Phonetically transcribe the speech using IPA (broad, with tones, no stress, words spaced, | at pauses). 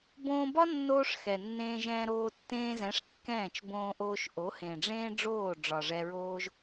bõː˧bɒ˦ nːoː˦ʂxɛ˨ nːẽː˧ʒɛ̃ː˧ɾoː˧ tːẽː˧zɛ̃˨˦ʂ kːɛ̃ː˦˨t͡ʃ bõː˧ʔoː˧ʃʔo˨˦hẽ˨ ɖ͡ʐẽː˦ ɖ͡ʐoː˦˨ɖ͡ʐɒ˨ ʐɛ˧ɹoː˦ʒ